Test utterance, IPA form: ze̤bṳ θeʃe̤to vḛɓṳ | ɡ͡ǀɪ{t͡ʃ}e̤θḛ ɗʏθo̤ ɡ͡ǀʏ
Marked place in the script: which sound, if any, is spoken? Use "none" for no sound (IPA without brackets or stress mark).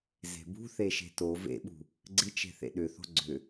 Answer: t͡ʃ